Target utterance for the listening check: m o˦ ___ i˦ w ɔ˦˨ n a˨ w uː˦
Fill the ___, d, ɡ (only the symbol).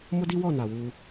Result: d